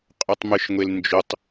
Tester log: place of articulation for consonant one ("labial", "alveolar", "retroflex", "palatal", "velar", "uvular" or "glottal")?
uvular